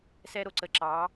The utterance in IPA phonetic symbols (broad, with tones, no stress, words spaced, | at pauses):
sɛ˧ɾo˨ ǀə˨ǁɑ˨˦